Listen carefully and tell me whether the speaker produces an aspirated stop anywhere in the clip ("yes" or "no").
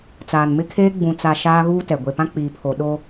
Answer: yes